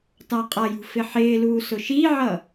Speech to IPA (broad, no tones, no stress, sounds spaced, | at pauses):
t ɑ qʼ ʌ j ṳ f ɪ ħ ɪː l uː s ʊ ʃ i ʕ ʌ